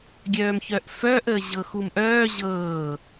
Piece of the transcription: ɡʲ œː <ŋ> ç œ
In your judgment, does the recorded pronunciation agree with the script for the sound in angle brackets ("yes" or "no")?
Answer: no